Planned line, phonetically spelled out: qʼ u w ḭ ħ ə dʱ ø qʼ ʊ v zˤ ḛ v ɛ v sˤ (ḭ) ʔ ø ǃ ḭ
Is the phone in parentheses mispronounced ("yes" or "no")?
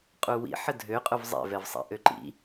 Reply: no